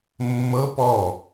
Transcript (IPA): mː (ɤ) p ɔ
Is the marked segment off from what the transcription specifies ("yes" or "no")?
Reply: no